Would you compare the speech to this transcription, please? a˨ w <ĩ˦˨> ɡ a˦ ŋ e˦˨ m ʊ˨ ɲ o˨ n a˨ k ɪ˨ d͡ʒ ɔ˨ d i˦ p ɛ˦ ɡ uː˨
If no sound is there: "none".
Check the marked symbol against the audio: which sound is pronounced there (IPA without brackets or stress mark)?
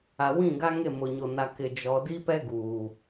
ĩ˦˨